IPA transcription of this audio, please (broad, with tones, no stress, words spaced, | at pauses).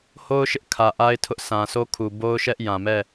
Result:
ho˦ʊ̯ʃɪ˦ʔ kʰä˨ʔa˦ɪ̯ tʰʊ˦ʔsã˨so˦ kʰu˨bo˦ʊ̯ʃɛ˦ʔ jã˨mɛ˦˨